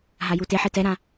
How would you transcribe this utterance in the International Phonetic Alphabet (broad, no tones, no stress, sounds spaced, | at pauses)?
ɦ a j u t e ħ e t ɛ ɾ ã